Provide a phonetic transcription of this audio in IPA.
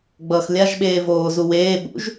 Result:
ɡ͡b ʌː x lʲ a ʒ ɓ eː v oː z u w eː ɓ ṵ ʒ

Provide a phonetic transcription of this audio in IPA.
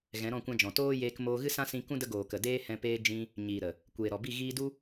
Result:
ɣ ɛ̃˨˦ ɾ ɔ̃˦˨ kʷ ã˧ d͡ʒ ɔ̃˨ t oː˦ j eː˧ k m oː˧ ɣ ɨ˦ s ã˦ s ĩ˧ k ũ˦ d ə˧ ɡ oː˨ k ə˨ d eː˧ h ɛ̃˧ p eː˧ d͡ʒ ĩ˧ | ɲ iː˨ ɾ ə˨ | kʷ eː˨ ɾ ɔ˨ b i˦˨ ɣ iː˧ d u˦

